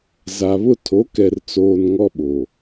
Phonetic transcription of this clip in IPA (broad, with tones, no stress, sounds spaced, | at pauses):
z a˨ β ʊ˦ tʰ o˨˦ k ɛ˨ r t͡s oː˨ n ŋ ɔ˦ ɓ o˨